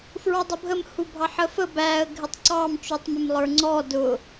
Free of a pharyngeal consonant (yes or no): no